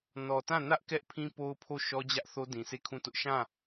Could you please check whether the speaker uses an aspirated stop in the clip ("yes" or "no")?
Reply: yes